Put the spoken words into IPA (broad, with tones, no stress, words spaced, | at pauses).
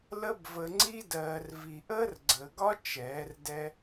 lə˦bvə˧ ŋ͡ǀi˧dɜː˨r vi˨ʔəː˦rɡ͡ǀəː˨ɡɒ˦ t͡ʃɛː˨˦rdɛ˦